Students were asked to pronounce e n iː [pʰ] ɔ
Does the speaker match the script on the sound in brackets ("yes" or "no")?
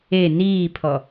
yes